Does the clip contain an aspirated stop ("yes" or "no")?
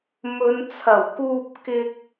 yes